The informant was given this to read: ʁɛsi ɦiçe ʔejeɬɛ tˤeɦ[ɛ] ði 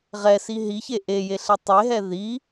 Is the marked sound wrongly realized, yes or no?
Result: no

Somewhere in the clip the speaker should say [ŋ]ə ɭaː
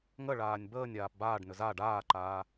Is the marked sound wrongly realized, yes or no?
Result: no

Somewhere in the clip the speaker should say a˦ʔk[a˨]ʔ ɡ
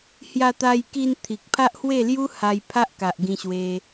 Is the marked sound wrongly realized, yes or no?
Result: no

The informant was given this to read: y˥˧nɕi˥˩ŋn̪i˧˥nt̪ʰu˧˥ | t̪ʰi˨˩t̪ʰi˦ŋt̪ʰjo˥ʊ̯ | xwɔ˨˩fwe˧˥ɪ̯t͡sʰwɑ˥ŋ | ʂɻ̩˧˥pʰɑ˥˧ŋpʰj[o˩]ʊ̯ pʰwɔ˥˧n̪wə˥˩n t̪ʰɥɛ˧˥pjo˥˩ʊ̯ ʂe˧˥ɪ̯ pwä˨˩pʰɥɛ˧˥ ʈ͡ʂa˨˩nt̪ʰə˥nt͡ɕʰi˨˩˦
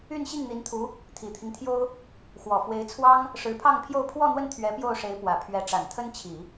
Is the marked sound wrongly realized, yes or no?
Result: yes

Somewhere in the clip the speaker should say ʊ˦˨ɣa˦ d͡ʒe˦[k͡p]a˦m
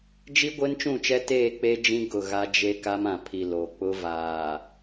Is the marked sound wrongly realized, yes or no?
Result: yes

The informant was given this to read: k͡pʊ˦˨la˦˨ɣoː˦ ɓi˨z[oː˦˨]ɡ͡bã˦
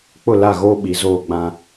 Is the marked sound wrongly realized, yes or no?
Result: no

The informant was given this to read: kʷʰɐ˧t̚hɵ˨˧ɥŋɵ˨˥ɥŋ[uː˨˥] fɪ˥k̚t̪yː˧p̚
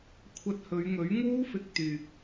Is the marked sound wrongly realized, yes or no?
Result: yes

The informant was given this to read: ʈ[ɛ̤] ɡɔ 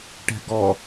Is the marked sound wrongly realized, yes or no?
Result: no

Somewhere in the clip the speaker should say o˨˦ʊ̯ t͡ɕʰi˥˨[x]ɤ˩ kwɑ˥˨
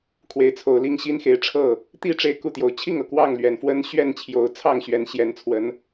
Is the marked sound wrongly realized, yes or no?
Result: yes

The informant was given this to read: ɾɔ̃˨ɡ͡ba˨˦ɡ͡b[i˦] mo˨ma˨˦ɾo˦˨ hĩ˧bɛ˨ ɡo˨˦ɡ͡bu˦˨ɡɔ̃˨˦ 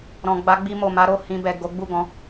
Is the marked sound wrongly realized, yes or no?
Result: yes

